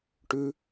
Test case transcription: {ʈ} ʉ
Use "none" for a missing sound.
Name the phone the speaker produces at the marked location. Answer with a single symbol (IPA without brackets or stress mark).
ʈ